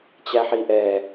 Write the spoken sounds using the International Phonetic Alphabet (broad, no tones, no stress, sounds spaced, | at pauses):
t͡ɕ æ ħ i ʔ ɛ